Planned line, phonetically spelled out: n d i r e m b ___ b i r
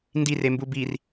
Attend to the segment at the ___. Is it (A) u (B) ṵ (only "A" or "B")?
A